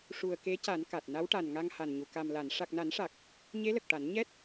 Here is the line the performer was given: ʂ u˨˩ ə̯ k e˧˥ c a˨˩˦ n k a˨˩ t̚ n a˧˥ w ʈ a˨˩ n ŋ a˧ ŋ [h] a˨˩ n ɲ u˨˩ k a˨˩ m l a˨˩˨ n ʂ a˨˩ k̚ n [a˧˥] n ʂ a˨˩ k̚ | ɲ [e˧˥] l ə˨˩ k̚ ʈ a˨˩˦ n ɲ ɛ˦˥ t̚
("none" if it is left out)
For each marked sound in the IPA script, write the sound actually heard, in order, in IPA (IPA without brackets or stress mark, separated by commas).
h, a˨˩˦, e˧˥